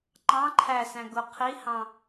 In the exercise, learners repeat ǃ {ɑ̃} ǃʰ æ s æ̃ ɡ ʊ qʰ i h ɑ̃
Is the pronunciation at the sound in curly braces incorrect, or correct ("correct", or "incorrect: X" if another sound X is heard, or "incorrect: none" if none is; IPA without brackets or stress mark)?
correct